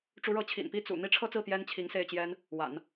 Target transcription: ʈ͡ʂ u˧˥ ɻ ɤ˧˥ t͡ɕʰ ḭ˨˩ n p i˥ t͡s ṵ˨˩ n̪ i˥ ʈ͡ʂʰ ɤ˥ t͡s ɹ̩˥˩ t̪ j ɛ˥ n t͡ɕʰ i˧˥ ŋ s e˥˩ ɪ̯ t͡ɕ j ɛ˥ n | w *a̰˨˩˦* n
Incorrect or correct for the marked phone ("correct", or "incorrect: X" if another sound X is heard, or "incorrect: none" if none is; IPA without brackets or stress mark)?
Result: correct